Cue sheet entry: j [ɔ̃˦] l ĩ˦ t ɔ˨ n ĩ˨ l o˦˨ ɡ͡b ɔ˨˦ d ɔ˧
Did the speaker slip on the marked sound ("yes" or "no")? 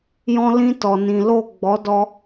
no